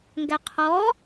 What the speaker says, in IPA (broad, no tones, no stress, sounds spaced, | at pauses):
ŋ ɡ æ qʰ ɔ